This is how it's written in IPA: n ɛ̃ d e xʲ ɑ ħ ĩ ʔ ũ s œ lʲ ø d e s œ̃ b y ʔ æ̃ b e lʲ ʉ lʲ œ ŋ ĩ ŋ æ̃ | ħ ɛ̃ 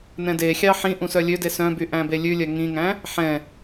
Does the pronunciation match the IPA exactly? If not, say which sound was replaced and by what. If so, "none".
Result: none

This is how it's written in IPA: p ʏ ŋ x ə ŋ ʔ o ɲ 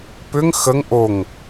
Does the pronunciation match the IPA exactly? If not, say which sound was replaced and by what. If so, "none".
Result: ɲ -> ŋ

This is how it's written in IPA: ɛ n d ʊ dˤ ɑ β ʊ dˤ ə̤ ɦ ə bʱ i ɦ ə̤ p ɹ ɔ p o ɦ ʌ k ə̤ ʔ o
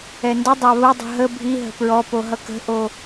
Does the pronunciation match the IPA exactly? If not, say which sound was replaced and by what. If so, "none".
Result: none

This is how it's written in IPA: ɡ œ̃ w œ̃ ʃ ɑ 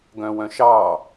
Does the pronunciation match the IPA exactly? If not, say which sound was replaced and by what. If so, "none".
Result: none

